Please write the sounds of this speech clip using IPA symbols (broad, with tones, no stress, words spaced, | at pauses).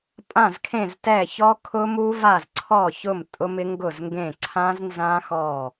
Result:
pʼã˥˩zkʰẽ˥˩ztɛ˥˩ çɔ˦˥kʰʊ˦˥mu˦˥va˥˩z ǀʰɔ˥˩çʊ˥˩m tʼʊ˦˥mɪ˦˥ŋɡʊ˥˩zŋɡẽ˥˩ ǀʰã˦˥znzã˦˥ xɔ˥˩